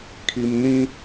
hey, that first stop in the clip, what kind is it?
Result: aspirated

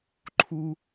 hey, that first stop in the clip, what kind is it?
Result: click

